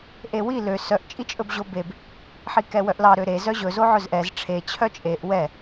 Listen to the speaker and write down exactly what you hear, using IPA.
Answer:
ʔ e w i l ø s œ ʔ t͡ʃʼ i t͡ʃʼ ɵ b ʑ o b e b | ħ i k ɛ w œ ʔ l ɑ ɾ ø ɾ e z œ ʑ ɵ z o ʕ ɵ z ʔ ɛ z ʈ͡ʂʰ e t͡ɕʰ œ t͡ʃʼ e ʔ w ɛ

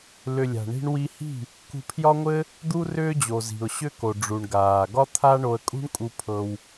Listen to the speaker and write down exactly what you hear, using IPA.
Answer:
l ʏ˨ lʲ a̤˨ ɳ i̤˧ ɳ w i˧ h i̤˦˨ | k ṳ˧ pʰ j ɒ˦ ŋʷ ɘ˦ | d̪ u˦ r ʏː˦ d͡ʑ o˨ z i̤˨ ʊ̯ ɕ ʏ˦ k o˨ ɖ͡ʐ u˨ ɳ ɡ aː˨ ɡ ɒ˦ t̪ʰ a˦ ɳ o˧ ə̯ kʼ ṳ˦ ɳ kʼ u˧ pʰ ɤ˧ w

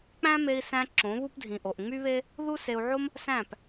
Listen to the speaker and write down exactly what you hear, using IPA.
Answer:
k͡p æ̃˦ m e˧ i̯ s æ̃˧ ǁ õ˨˦ β u˦ p dʱ ĩ˨ ʔ o˨ ʔ ŋ͡m y˦ β e˦ | ð u˦ s e˧ u̯ ʕ o˦ m | s æ̃˦˨ p

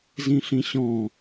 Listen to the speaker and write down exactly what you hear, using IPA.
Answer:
z ĩ ɬ ĩ ɕ ɔ̃

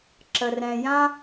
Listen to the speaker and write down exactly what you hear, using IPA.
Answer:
ǁ ə˨ r ɛ̃˨ j ã˦

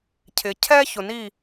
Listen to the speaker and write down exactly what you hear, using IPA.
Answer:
cʰ ɪ˩ cʰ ɛ˥ ç ʊ˩ n i˥˩

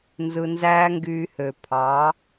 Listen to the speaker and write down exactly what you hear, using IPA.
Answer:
n z ɯ˧ n z æː˦ ŋ ɡ yː˧ h ø˨ pʰ ɑ˨˦

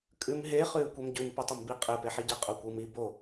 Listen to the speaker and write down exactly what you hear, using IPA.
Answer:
kʼ ʉ m ɦ e χ ʉː kʷ e m ɟ ʉ m p ʉ tˤ e m b i qʼ e p e ħ i ɟ ɛ qʼ o kʷ ɯ m i b o

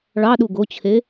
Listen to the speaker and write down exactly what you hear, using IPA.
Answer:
ɭ ɑ ɗ u ɡ o t͡ɕʰ e

